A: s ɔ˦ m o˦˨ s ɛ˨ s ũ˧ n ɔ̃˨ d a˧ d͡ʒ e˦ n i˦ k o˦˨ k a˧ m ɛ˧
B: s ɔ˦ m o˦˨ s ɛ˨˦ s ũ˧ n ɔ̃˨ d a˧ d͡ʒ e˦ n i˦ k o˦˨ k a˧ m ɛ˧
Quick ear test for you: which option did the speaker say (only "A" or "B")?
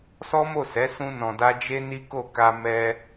B